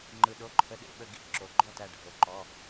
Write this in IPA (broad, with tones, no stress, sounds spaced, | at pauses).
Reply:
ŋ͡ǃ ɯ˩ ɗ o˩˧˩ ǃʰ ə˩˧˩ ɗ ḛ˧˩ ɓ ə˧˩ ɡ ḭ˧˩ ǁ o˩ ɡ͡ǃ ɔ˥˨ t æ˧˩ ɖʱ o˩ ǃ ɔ˩˧˩